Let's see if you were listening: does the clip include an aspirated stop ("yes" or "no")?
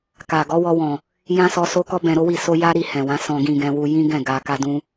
no